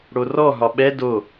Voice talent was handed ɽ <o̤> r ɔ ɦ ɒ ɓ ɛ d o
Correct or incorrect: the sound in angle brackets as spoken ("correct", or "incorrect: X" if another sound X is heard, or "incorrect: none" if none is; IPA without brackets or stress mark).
incorrect: o